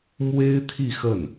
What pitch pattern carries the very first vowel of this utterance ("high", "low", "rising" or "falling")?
high